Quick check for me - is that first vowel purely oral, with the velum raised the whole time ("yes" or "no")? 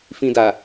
no